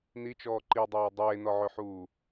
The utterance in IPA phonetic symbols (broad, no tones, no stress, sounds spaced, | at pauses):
n i t͡ʃ ɔː ǃ i dˤ oː dˤ eː n ɔ ʕ ø ħ uː